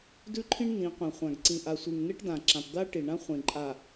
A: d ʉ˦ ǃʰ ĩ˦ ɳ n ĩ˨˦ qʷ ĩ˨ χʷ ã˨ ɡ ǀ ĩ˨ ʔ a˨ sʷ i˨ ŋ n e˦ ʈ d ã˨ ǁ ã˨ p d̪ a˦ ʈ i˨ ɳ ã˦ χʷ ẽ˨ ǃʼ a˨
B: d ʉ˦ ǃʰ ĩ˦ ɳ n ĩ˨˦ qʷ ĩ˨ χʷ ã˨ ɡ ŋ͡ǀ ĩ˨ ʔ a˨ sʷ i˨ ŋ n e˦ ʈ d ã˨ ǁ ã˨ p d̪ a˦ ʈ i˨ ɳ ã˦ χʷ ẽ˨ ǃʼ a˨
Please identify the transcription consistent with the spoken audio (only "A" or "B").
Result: A